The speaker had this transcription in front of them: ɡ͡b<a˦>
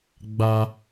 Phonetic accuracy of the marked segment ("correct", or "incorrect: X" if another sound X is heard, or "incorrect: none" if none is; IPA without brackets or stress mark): correct